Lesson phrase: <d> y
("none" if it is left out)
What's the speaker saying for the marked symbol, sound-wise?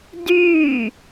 d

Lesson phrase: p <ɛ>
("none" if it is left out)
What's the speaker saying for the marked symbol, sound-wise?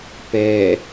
ɛ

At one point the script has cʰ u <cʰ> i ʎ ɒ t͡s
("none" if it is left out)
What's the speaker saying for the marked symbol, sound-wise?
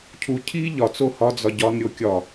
cʰ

